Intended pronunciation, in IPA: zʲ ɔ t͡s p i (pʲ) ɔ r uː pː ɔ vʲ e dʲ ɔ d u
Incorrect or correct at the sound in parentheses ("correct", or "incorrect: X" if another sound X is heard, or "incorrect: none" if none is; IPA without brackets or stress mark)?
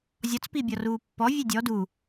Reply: incorrect: bʲ